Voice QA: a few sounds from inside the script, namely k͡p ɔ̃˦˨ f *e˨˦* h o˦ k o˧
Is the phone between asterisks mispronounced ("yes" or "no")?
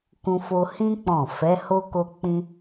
yes